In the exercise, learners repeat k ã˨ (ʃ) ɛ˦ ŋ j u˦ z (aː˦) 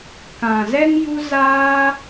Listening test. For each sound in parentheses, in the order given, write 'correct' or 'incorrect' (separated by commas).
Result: incorrect, correct